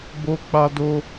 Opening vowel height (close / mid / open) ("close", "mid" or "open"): mid